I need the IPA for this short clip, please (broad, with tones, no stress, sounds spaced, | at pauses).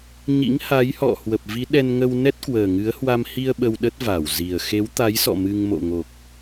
ɲ ḭ˧˥ ŋ h a˨˦ j h ɔ̰˧˨ h w ə˨˩ p̚ v i˨˦ ɗ ɛ˧ n ŋ ə˧ w n ɛ˦˥ t̚ k w əː˨˩ ŋ ɨ˨˦ ə̯ h w a˧ m h i˧ ə̯ ɓ ə˧ w ɗ ə˦˥ t̚ v a˧˩ w z i˨˩ ə̯ x e˨˦ w t̪ a˨˦ j s ɔ̰˧˨ m ɨ˧ ŋ m o̰˧˨ ŋ o˨˩ k̚